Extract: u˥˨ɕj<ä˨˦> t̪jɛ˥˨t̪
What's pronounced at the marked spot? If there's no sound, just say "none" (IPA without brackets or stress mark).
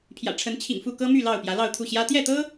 ä˦